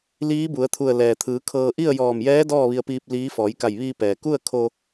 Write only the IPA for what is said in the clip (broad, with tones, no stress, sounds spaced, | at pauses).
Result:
l iː˧˥ b u˩˧ ə̯ t̪ʰ u˧˩ ə̯ l ɛː˩ t̪ʰ ɯː˩˧ kʰ ɤː˧ ʔ i˥˨ ə̯ j ɔː˧˩ m j ɛː˧˥ d ɔː˥˨ ʋ i˧ ə̯ p iː˧ p̚ l iː˧˥ f ɔː˩˧ j k a˧˩ j ʋ iː˧ p ɛː˩ k u˥˨ ə̯ kʰ o˧